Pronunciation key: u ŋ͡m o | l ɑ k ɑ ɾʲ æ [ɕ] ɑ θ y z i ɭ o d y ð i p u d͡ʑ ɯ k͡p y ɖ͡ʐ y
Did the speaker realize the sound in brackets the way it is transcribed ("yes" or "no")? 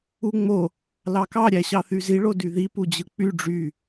yes